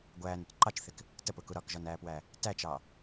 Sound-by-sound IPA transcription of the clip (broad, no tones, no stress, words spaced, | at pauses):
ɡʷæːnʊt ǃɑt͡ʃθɪk | təpʊku ɾɒkʒɒnæːpwæ | tæt͡ʃɑ